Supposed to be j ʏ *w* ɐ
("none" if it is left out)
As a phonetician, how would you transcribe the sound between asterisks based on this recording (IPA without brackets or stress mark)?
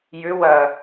w